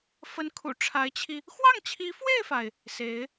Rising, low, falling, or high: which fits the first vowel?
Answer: rising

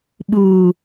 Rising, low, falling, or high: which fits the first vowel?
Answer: low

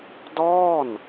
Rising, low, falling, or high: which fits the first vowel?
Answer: falling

